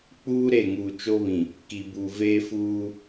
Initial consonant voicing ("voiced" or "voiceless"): voiceless